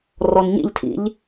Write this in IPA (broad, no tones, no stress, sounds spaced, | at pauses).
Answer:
r ɔ n ɲ ḭ ʎ tʰ ḭ ʎ